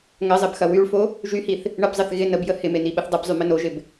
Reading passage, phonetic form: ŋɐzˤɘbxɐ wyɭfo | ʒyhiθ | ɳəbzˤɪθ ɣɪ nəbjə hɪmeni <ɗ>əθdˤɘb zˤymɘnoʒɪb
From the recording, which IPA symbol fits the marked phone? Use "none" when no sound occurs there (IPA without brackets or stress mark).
ɓ